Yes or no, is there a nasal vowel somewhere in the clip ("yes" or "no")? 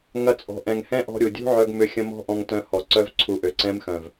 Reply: yes